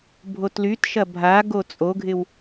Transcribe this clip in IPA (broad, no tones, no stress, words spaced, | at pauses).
bʱotlytʃɐ bʱa ɡot͡sʼoɡʱɪw